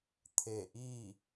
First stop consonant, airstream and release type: aspirated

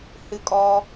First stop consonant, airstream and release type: ejective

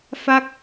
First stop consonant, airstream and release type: plain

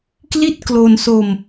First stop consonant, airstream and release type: plain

